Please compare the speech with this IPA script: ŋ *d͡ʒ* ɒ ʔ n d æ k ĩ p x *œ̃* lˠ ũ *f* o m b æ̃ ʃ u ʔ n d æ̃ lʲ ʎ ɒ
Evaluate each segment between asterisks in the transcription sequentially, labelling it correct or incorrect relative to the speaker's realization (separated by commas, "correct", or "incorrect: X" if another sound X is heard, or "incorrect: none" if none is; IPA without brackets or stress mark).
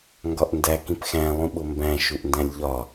incorrect: ɡ, incorrect: æ̃, incorrect: ɓ